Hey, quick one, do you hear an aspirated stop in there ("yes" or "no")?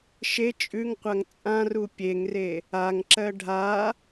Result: no